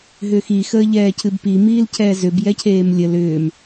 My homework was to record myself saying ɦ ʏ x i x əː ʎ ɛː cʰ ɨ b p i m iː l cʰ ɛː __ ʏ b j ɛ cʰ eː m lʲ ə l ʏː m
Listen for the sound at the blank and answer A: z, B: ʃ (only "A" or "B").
A